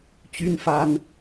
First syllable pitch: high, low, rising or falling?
high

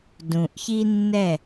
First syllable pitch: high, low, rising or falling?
low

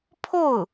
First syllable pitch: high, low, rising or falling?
falling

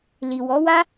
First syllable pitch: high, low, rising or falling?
low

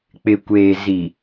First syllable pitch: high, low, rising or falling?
low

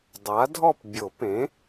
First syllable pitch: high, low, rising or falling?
rising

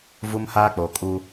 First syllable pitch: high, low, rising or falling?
high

